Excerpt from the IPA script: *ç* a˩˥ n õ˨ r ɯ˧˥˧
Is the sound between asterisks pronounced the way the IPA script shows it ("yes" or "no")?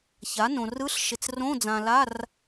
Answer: yes